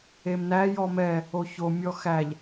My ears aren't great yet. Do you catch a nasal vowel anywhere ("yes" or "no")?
no